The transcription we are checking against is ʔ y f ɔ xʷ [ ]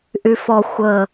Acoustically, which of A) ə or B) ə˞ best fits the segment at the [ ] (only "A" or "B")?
A